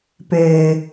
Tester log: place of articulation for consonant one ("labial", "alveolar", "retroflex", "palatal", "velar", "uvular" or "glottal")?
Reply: labial